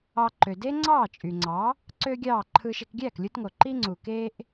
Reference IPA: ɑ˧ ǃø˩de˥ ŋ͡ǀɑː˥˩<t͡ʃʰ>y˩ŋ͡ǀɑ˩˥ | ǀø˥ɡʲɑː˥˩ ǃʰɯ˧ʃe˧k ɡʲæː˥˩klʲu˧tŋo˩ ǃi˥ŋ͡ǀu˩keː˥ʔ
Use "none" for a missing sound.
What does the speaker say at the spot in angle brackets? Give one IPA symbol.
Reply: t͡ʃʼ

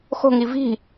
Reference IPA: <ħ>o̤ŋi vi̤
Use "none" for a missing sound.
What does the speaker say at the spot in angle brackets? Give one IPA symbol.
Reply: x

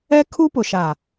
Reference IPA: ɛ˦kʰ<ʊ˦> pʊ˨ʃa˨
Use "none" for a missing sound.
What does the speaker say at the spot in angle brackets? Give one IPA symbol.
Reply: u˦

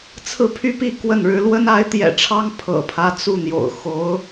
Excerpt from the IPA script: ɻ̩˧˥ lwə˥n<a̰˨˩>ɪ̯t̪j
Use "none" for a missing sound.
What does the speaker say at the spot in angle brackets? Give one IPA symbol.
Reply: a˧˥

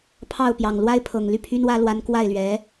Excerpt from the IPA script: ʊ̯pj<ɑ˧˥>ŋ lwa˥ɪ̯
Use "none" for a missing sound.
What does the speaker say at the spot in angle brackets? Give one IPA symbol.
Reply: ɑ˨˩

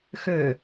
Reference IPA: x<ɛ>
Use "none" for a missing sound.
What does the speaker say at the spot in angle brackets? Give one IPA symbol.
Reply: ø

